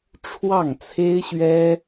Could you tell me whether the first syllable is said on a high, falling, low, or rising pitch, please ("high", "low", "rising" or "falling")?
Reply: falling